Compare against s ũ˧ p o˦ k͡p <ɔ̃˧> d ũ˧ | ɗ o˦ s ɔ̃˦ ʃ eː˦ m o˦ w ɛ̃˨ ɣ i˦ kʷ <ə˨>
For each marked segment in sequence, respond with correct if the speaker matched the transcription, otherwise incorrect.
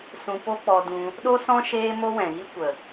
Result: incorrect, correct

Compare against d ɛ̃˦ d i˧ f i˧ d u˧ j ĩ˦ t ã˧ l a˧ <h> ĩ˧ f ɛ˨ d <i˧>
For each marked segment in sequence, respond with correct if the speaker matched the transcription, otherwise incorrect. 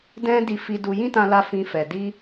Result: incorrect, correct

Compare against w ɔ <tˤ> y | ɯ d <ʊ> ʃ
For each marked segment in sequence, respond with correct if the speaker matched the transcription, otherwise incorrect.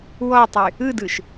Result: correct, incorrect

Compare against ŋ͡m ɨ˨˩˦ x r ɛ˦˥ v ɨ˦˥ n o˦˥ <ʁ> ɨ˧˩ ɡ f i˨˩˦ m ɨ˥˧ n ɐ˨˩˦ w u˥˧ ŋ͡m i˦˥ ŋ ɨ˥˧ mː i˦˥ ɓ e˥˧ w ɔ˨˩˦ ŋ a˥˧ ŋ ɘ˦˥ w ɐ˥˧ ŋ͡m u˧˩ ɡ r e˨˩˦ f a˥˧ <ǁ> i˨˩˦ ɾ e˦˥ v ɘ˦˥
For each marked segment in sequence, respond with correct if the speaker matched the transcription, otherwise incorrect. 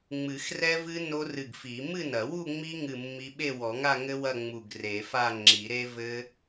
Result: incorrect, incorrect

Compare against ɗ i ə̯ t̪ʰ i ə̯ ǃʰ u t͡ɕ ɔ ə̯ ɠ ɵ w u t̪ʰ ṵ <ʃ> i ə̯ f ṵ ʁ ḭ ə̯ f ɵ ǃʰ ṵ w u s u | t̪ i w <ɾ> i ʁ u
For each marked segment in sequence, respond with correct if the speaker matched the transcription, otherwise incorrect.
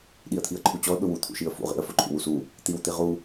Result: correct, incorrect

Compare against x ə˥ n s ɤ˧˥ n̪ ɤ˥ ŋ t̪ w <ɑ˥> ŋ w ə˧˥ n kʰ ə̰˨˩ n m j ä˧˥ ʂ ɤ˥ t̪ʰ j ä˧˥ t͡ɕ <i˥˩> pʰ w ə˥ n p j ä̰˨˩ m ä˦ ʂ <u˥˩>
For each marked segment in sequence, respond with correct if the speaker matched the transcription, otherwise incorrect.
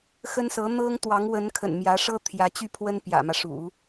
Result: incorrect, incorrect, incorrect

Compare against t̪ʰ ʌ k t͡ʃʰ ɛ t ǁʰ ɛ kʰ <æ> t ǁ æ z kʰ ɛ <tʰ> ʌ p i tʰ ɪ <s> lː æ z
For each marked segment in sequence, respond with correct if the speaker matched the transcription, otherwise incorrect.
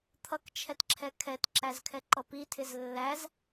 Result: incorrect, incorrect, incorrect

